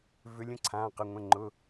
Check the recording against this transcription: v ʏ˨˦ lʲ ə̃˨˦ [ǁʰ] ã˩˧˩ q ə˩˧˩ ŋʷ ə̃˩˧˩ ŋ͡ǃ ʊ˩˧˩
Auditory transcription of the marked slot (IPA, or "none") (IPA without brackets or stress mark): ǀʰ